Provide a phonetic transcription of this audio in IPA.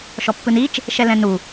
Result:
ʃ ɔ pː ɯ n i t͡ʃ | ʃ ɛ l ɛ̃ n u

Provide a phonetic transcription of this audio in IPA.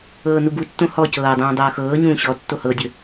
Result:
ɤː n u ɡ u tː õ h ɔ c ɤː dˤ ũː dˤ ɤː x ɤː ɲ ũː ɕ ɔ tː o h ɤ dʲ ɵ

